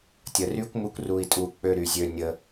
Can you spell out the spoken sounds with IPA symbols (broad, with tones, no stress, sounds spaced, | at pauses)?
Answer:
tʲ ə˨ r y˦ kʷ m u˦ kʷ r u˧ i̯ tʼ u˧ k͡p ø˧ ɾ y˨ zʲ ø˧ nʲ ə˧